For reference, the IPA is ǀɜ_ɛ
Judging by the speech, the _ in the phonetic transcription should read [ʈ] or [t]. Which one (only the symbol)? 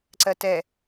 t